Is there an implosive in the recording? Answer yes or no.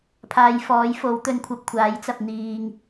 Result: no